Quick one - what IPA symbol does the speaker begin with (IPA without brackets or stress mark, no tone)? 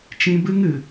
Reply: t͡ʃ